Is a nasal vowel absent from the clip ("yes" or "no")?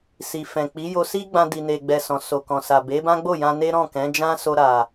no